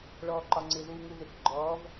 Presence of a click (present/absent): present